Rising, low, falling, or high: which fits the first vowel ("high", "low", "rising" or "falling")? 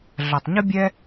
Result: low